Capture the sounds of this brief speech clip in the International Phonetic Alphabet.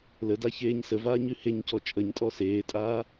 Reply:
l ə d a ç eː ɲ s ə v aː ɲ ʉ h e ɲ c ɔ t͡ʃʼ ə ɲ tʼ ɔ s eː tʼ aː

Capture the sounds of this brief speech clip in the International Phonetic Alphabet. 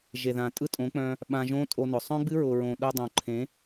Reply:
ʒ e˨ ð ã˨ tʼ ɯ˦ tʼ õ˨˦ k͡p œ̃˧ | ɓ ã˧ ʒ õ˦ tʼ o˧ n ʊ˨ sˤ œ̃˦ ɡ͡b ɨ˦ ɹ ʊ˨ ɹ õ˨ ɗ ʊ˧ dˤ õ˨ ǃʰ ẽ˨˦

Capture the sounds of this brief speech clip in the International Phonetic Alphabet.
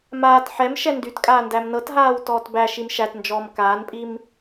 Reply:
m aː t ħ ɛ m ʃ ɛ n d y t kʼ aː n d æ m n ɤ t ɦ aː w t ɔː t b æ ʃ i m ʃ æ t n d͡ʒ ɔː m k aː n pʼ i m

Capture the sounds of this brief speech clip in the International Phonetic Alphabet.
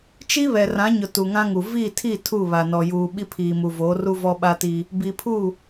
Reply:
t͡ʃ i˦ β ɛ˨ r ã˨˦ ɲ ʊ˨ t u˨ ŋ ã˦ ŋ u˨ v i˦˨ tʰ i˦˨ tʰ u˦˨ β a˨ n ɔ˨ j uː˨ ɓ i˦ pʰ iː˨ m u˨ v oː˨˦ r u˦ v ɔ˦ ɓ a˦ t iː˦ | b i˨ pʰ uː˦˨

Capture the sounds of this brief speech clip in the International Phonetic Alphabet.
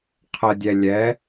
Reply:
qʰ ə dʲ ɛ lʲ ɛ

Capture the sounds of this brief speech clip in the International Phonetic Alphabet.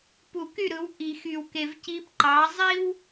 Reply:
p u˨˩˦ k y˥˩ ɾ ɯ˩˥ w ʔ i˨˩˦ x y˨ w k e˨ v c i˧˥ b ǃ ɑ˩˥ zˤ i˥ w

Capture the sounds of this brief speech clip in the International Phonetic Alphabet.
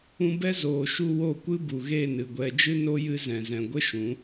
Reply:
ũ˧ b ɛ˦ z oː˨ ʃ u˧ w o˦˨ kʷ ɨ˦ b u˨ ɣ e˦˨ n ɨ˨ ɡʷ ɛ˧ d͡ʒ ɨ˦ n o˦ j ɨ˦ z ɛ̃˨ z ɛ̃˨ ɡʷ ə˦ ʃ ũ˨˦

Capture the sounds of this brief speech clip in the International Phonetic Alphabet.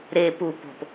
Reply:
ɾ e p u p o̤ p

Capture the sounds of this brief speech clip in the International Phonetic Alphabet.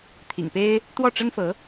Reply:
t̪ʰ ḭ˨˩ ŋ p e˥ ɪ̯ | t̪ w ɔ˥˩ ʈ͡ʂ ə˥ n f ɤ˧˥

